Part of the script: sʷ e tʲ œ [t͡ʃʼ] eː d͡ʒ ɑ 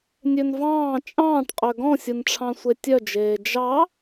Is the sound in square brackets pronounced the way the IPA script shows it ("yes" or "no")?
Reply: no